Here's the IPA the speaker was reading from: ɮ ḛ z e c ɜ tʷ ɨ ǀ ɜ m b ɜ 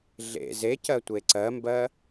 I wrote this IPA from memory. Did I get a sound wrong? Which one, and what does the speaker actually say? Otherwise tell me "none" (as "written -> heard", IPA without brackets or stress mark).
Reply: ɨ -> e